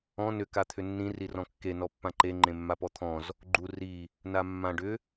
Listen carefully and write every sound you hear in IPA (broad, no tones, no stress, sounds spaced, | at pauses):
ɔ̃ n ʏ k a t̪ʰ ʏ nː ĩ r i r ɔ̃ kː e n ɔ pː ã ǃ e ŋ͡ǃ ẽ mː a p ɔ t̪ʰ ɔ̃ z | ɡ͡ǃ u r i | n a mː ã ɖ ʏ